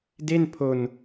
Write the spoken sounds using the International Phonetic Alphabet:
d e˥˩ n pʰ o˧ n

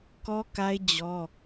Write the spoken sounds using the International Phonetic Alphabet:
k ɔ˦ k a˦ ɪ̯ d͡ʑ ɔ˦

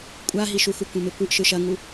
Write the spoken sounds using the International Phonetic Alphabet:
kʷʼ a ɦ i ʃ u x u kʷ ẽ m e kʷ ɯ ʔ ʃ ɯ ʃ ɐ ŋ u

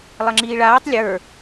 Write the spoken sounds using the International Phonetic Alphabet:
lˠ ɐ ŋ͡ǁ iː ɭ aː tˤ lʲ ə˞

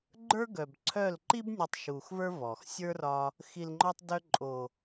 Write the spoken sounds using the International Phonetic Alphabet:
ɡ͡ǃ ə˞˦ ɡ œ˨ b ǀʰ œ˦˨ l ǃ i˦ b nʲ œ˧ tˤ ʃ u˨ x v ə˞˦ v ɔ˨ x sʲ ə˞˦ r ɒ˧ | x i˨ l ŋ͡ǃ ɔ˧ tˤ d œ˧ ǃʼ o˨

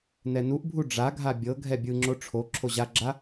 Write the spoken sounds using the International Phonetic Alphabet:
n ɛ n u ʔ bʱ u ɖ͡ʐ a ɡʱ a bʲ ɤ ɡʱ ɛ bʲ ɯ ŋ͡ǁ o ʈ͡ʂʰ o ǁʰ o ʑ a ɡ͡ǁ a

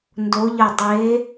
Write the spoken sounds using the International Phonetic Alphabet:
n d o˨˦ ʎ ɐ˧˩ dˤ e˨˦

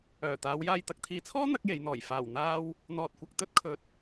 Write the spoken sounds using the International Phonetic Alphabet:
œː˨˩ t̪ aː˨˧ w j aː˨ j t̪ ɐ˨ k̚ t̪ʰ iː˨ t͡sʰ ɔː˥ n̪ ɐ˥ k̚ j e˨˧ j n̪ ɔː˨˩ j f aː˨˩ w n̪ aː˧ w | n̪ ɔː˨ t̚ kʷ ɐ˨ k̚ t̪ ɵ˥ t̚ kʰ ɵ˨˥ t̚

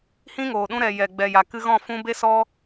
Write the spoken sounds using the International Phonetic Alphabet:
h ĩ˦ ŋ oː˨ ɗ ũ˧ ɾ ɛ˨ j ɛ˨ ɡ͡b ɛ˨ j a˨ k ɨ˧ ɣ ɔ̃˦˨ f ũ˧ b e˦ s ɔ˦

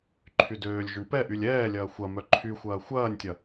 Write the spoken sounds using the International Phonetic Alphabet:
ǃʰ y d øː lʲ ʒ ʊ ɳ p ɛ ʔ y lʲ ɛː lʲ ɐː xʷ ɐ m œ ǃʰ y xʷ ɐː xʷ ɐː nʲ tʲ ɐ

